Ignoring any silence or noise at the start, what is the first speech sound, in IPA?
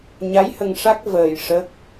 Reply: ɲ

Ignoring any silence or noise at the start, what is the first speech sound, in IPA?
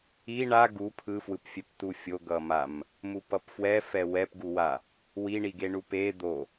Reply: i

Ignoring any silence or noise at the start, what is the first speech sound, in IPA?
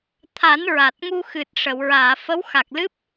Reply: t̪ʰ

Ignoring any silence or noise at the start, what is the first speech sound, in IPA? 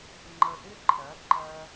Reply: ŋ͡ǃ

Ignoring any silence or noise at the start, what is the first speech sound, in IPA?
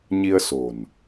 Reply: ɲ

